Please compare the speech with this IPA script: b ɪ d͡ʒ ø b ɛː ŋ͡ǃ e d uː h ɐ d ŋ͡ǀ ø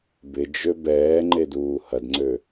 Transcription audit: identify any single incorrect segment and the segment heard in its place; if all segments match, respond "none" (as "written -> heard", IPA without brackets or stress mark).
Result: none